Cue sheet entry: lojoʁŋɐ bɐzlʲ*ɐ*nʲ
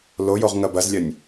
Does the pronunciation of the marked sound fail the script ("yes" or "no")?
no